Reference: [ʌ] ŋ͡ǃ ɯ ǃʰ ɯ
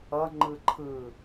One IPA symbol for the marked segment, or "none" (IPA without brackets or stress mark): ʌ